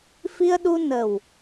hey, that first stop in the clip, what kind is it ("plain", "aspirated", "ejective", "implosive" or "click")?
implosive